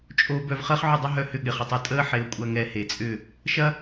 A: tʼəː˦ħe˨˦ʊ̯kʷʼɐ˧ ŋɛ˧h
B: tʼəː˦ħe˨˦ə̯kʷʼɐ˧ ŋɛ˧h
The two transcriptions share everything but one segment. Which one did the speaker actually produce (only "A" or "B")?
A